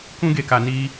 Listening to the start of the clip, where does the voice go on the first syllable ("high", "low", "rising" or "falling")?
high